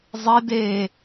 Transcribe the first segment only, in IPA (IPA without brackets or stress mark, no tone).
zˤ